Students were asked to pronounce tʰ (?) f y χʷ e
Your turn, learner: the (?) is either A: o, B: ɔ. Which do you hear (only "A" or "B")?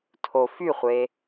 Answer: A